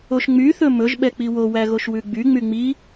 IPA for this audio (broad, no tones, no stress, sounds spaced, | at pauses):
o ʃ ŋ͡m y θ ɵ m ɵ ʒ ɓ ɛ k͡p i w o w æ ɣ o ʃ w ʉ ɡ͡b y ŋ͡m y ŋ͡m i